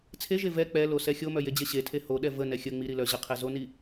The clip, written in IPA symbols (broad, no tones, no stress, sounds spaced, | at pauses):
t͡sʰ e ʒ e v ɛ k͡p ɛ l o s ɛ xʲ o m œ j e d͡ʑ e ɕ e tʰ e h o ɗ ɛ v ə n ɛ xʲ ə ŋ͡m i ɾ i l œ ʑ ə qʰ ɛ z o n i